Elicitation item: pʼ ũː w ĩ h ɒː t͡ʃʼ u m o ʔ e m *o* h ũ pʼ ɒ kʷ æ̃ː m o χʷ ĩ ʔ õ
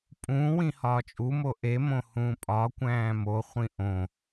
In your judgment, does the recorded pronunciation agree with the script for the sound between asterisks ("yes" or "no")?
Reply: no